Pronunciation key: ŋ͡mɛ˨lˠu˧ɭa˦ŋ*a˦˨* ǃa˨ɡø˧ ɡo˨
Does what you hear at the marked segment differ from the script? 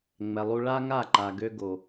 no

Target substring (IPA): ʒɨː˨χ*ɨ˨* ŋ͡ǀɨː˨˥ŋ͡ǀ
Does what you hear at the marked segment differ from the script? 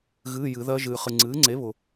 no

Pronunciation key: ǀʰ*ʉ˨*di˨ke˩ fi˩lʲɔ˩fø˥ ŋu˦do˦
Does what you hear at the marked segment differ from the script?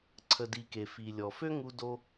yes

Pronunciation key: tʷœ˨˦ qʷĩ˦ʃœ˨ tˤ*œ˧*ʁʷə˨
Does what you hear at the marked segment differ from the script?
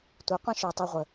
yes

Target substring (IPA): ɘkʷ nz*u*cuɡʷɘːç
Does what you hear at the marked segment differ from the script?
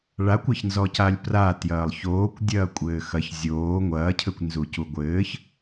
no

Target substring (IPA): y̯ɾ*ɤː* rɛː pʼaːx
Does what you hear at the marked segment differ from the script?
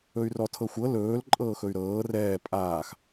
no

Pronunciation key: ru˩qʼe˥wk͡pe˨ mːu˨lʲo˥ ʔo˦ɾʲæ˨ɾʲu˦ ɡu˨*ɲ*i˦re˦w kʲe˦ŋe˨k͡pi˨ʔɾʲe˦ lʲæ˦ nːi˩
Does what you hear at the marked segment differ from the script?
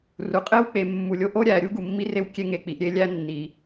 yes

